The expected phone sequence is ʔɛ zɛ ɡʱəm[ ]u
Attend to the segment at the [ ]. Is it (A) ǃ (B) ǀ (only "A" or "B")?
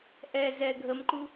A